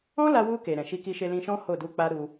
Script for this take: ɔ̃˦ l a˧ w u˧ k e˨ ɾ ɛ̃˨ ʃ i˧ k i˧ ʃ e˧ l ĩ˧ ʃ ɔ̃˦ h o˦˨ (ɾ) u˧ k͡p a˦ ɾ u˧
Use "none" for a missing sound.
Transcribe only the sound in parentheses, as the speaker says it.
d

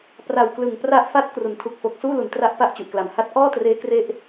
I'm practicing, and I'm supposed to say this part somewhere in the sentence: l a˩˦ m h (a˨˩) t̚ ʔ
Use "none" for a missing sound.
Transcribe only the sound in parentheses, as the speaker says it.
a˦˥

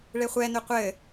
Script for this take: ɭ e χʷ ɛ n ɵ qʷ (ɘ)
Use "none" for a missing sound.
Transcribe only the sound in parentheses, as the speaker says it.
ɘ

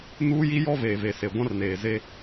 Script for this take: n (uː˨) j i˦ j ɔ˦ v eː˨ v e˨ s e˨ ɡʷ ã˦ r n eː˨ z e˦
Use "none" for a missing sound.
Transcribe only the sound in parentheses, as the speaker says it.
uː˦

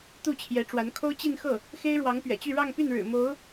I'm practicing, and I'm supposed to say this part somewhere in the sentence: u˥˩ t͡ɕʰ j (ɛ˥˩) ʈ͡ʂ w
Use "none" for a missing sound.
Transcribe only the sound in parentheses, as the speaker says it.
ɛ˧˥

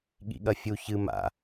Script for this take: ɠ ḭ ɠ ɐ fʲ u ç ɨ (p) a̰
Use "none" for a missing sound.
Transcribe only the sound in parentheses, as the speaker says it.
m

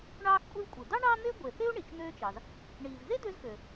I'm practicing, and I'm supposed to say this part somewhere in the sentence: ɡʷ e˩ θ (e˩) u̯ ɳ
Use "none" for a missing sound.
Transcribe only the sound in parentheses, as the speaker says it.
e˥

